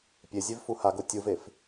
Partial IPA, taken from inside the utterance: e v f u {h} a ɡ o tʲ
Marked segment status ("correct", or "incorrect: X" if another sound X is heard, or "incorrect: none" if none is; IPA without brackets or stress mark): correct